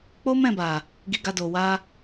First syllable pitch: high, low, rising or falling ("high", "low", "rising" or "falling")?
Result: high